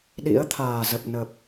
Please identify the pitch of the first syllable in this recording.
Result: rising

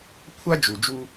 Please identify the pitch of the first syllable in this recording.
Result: high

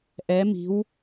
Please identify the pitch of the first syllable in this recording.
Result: rising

